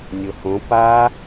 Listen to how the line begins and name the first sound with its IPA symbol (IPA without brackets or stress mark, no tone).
nʲ